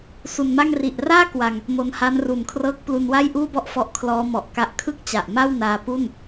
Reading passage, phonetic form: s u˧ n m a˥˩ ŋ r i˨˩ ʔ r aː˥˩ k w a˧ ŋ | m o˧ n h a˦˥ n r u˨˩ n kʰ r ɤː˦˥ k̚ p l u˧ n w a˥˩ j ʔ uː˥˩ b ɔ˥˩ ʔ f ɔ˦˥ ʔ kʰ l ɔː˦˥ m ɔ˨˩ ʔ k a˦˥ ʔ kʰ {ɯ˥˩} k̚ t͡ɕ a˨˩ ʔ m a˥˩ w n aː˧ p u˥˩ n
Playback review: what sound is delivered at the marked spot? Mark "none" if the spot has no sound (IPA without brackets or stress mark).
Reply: ɯ˥˩